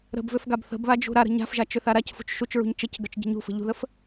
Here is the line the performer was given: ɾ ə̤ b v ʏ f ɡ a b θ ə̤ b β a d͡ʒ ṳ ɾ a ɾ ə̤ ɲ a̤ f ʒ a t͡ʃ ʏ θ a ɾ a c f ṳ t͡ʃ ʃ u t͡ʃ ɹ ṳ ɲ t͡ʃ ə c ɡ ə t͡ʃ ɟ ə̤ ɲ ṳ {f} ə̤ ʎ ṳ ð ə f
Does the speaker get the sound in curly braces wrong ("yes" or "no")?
no